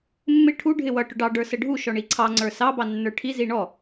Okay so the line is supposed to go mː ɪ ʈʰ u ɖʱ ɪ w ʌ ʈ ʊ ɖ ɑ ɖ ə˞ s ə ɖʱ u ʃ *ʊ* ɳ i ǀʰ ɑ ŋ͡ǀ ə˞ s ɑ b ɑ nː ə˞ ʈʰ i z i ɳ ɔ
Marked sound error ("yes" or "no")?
yes